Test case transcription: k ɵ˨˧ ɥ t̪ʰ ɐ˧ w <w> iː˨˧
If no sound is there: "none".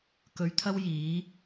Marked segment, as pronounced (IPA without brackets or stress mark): j